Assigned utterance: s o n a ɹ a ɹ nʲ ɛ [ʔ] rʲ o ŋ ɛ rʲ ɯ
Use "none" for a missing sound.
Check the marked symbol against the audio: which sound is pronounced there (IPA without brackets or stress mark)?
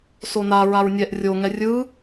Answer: ʔ